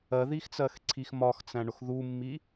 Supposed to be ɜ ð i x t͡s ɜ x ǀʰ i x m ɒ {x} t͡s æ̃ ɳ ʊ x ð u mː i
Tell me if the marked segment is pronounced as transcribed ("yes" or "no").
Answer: yes